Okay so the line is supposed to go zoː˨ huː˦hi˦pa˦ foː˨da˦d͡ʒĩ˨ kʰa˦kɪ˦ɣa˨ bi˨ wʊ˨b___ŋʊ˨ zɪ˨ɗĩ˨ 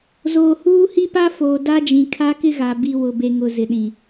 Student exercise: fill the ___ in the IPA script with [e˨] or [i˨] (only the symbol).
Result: e˨